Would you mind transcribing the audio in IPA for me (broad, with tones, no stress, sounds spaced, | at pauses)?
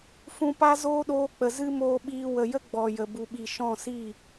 f ũ˧ p a˦ z oː˦ ɗ oː˧ k͡p ə˨ z ɨ˦ m oː˧ ɓ iː˧ w ə˨ j ə˦ ɡ͡b ɔ˨ j ə˨ b u˨ ɓ i˨ ʃ ɔ̃˦˨ s i˦˨